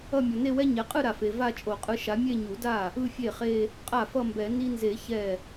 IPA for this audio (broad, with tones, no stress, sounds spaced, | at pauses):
ʌ˥˧ mʲ ʌ˨ n e˥˧ w ɛ˥ ɲ ɛ˨ qʼ ɯ˥˧ ɾ a˨ f e˨ v a˥˧ t͡ʃʼ o˨˩˦ qʼ ɯ˧˥ ʃ a˧˥ mʲ e˥˧ ɲ u˨˩˦ d a˥˩ | ɯ˥˧ fʲ e˥˩ χ e˥˧ | qʼ a˥˩ f ʌ˥˧ m b ɛ˨˩˦ n i˥ n z e˨˩˦ ç ɛ˥˩